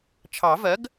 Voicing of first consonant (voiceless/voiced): voiceless